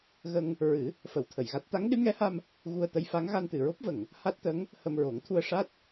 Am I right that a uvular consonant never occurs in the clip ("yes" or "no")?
yes